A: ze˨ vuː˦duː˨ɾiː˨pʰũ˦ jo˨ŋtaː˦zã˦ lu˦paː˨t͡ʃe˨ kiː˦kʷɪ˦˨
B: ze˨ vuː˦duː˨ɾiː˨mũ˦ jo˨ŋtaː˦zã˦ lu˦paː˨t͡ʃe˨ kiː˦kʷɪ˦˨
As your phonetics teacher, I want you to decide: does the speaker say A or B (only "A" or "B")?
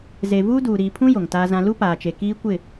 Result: A